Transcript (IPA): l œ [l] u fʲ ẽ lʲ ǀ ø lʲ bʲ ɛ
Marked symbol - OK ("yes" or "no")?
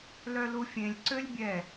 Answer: yes